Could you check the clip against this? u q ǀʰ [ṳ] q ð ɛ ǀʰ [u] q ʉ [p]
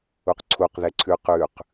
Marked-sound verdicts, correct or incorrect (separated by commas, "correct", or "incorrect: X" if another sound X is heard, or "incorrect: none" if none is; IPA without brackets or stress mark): incorrect: u, incorrect: ʉ, incorrect: q